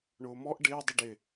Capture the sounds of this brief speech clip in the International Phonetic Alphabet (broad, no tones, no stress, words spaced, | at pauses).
ɳʊːmɔʔ ɖɪː dˤʊɖɪ